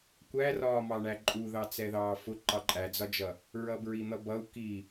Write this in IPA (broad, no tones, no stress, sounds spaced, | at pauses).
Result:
kʷ æ r ɒː m ɑ ɳ æ ǃʼ u ð ɑ t͡s ɛ ð ɑː f ʊ ǃ ɑ ǃʼ æ d͡z ɒ d͡ʒ ʌ | ɹ ʌ b ɹ i n̪ ʌ b ʌ u̯ k i